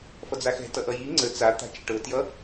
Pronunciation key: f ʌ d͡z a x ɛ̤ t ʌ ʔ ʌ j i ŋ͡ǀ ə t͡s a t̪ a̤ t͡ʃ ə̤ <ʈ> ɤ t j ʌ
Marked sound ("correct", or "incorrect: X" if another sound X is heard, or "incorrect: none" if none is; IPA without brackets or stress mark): correct